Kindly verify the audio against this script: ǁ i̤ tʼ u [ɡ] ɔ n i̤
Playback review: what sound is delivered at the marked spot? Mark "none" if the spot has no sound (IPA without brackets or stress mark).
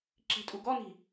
ɡ